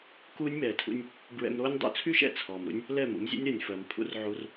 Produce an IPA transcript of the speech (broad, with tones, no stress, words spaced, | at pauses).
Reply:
kuː˦nʲmɛː˨tʰṵ˦nʲ | bɹɛ̰˧mɾoː˦nʲ dˤṵ˧t͡sʰy˦ʃɛ̰˧ t͡sʰɔː˨mɾṵ˦nʲ | lɛ˦˨mṵ˨˦mzʲṵ˦nʲɾɜ˨nʲ fɜ˨m pʰṵ˦rʕu˦r